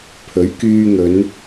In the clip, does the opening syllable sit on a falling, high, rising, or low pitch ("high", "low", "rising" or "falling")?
rising